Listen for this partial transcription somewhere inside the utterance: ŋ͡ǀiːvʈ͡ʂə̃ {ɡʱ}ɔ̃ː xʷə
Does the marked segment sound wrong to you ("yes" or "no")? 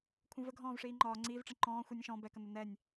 yes